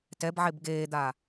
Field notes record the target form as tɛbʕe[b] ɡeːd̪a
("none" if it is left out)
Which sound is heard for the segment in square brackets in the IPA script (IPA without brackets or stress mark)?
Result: b